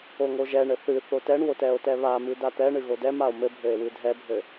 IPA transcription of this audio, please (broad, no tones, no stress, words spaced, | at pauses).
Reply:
oŋoʒɛɳɘ θɨ θotɛɳwot ɛo̯tɛβamɨ dat̪ɛɳɨ ɣodɛmao̯ mɘbʱɘe̯ wɨdʱɛbʱɘ